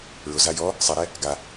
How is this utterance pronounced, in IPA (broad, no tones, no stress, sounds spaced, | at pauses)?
ɹ ʊ z a j ɔ | sˤ ɛ ɾ ɛ | ɡ a